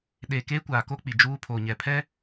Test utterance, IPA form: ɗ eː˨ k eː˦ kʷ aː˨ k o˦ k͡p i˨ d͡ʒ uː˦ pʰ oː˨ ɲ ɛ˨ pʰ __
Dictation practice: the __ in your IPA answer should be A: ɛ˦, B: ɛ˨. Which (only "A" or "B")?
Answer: A